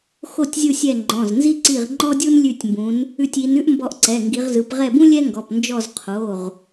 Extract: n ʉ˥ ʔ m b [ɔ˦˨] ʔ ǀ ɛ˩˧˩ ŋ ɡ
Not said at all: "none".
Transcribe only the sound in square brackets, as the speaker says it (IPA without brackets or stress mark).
ɔ˦˨